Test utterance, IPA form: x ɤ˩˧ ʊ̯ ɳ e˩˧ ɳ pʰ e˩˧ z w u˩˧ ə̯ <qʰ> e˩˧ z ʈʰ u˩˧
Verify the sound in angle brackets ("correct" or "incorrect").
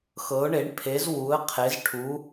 correct